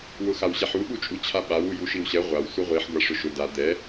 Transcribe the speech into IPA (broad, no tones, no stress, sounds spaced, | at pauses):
w ʊ x a w ɕ ɛ ħ u ɓ u t͡ʃʼ u t͡ɕʰ a ɓ a w u j u ʃ i w ɕ ɛ ʁʷ a w s u ʁʷ i ħ ɡʷ a ʂ ʊ ʃ ʊ d a d̪ ɛ